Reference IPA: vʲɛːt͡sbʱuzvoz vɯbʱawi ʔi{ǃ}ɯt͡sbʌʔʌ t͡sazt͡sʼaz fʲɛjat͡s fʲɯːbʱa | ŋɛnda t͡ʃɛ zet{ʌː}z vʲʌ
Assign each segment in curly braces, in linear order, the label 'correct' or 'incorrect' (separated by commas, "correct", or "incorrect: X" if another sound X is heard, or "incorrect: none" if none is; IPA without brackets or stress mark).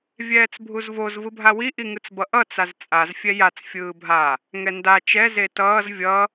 incorrect: ŋ, correct